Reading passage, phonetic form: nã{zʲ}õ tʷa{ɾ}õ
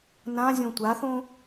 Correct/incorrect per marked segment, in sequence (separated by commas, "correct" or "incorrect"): correct, incorrect